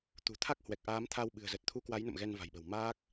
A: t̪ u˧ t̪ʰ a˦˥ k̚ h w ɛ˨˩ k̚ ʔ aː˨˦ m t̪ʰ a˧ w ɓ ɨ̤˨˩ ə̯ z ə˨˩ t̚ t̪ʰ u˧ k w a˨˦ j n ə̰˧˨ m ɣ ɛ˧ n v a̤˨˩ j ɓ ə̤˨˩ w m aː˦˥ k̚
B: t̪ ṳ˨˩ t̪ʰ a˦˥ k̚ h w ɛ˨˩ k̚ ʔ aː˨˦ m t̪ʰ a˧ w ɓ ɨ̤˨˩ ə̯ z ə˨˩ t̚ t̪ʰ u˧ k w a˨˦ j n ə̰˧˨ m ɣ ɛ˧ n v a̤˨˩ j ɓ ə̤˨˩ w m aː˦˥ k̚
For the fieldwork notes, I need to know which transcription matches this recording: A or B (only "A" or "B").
B